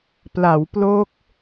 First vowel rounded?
no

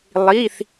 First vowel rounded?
no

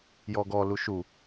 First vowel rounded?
yes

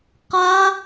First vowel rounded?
no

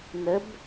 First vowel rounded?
no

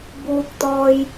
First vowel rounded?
yes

